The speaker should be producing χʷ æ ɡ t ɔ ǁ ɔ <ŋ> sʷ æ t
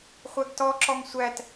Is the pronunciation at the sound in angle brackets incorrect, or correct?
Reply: correct